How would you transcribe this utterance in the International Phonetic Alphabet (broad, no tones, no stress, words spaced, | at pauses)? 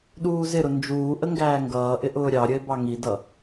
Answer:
ɗuːzɪɾʊ nd͡ʒuː ʔəŋɡæːŋɡʌːʔɪ ʔʊːɾʲɑɾʲəe̯ bɑŋidʌ